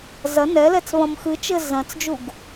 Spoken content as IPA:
z ɐ n ɛ l ɛ t͡s β ɐ̃ m x ɨ t͡ʃ ɘ z ɐ̃ t͡s d͡ʒ u ɡ

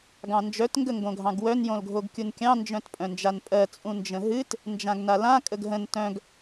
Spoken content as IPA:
ɡ ɑ̃ n d͡ʒ œ t ŋ ɡ ə ŋ ɡ õ ɡʱ ɑ̃ ɡ w œ n j õ l ɡʱ o ɡ kʲ u n kʲ ɑ̃ n d͡ʒ œ̃ t pʼ œ̃ n d͡ʒ a n pʼ ɜ t͡sʼ ũ n d͡ʒ ə̃ ɦ ɨ t | n d͡ʒ ã ɡ n a l ã kʼ ə ɡ ɦ ə̃ n t œ̃ ɡ

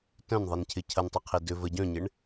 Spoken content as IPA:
t œ̃ n ðˤ i n cʰ ɪ cʰ ɐ n tˤ ɐ qʰ i d ʏ v ə ɟ œ̃ ɲ ɪ ɳ

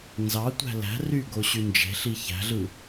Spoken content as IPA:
n z ɑ tʷ æ̤ l æ̤ r y ɡ o ɕ y n d͡ʒ e̤ ɬ i ç æ̤ ɮ ɯ

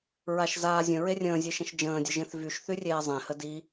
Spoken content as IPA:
ɹ a ʃ z aː zʲ ə̃ ɹ e rʲ ə̃ː zʲ e ʃ ə̃ ʃ d͡ʒ ə̃ː dʲ ə ʒ ẽ θ v y ʃ θ y rʲ eː zˤ ẽ h ə d i

